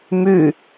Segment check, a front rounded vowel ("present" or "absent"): present